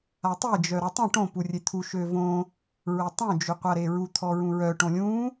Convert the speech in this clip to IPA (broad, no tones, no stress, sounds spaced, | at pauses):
a tˤ e d͡ʒ œ ɾ ɔ tˤ ə̃ ʈ õ p u rʲ e t̪ʰ u ʃ ø v õ | ɹ ɛ tˤ õ d͡ʒ ø qʷ a ɾ e ɹ u t̪ʰ ɔ ɹ ũ ɹ œ ʈ õ lʲ ũ